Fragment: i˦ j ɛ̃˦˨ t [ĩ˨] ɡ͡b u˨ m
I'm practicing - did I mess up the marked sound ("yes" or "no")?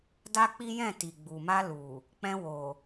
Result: yes